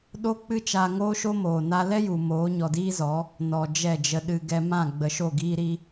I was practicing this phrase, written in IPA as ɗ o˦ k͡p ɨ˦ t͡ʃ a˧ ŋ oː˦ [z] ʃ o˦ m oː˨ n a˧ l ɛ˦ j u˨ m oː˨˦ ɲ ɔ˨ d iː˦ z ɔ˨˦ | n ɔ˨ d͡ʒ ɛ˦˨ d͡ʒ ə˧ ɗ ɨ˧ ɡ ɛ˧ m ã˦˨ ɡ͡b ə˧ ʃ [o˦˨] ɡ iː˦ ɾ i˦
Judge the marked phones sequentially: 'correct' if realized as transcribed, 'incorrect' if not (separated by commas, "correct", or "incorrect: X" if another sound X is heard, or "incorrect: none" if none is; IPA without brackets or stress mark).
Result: incorrect: none, correct